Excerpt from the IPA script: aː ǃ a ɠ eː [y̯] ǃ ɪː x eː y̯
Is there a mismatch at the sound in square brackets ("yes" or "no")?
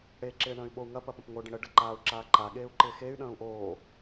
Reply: yes